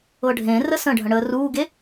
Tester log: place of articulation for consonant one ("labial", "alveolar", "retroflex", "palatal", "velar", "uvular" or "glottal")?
retroflex